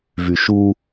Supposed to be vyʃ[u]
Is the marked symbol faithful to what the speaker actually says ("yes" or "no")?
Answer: yes